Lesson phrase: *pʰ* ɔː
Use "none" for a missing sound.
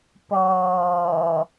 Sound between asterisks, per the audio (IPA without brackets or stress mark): p